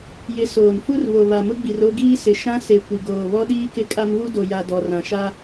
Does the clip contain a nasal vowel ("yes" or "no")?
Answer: yes